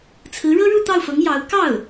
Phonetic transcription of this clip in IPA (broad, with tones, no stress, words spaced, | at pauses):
t͡sʰɹ̩˧˥ɻɤ˥ɻu˥˧ t̪ɑ˥˩ʊ̯fɤ˧˥ŋ jɑ˧˥ʊ̯ kɑ˥˩ʊ̯